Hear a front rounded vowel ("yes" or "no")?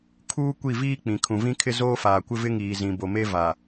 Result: no